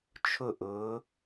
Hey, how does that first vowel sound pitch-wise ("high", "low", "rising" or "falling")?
falling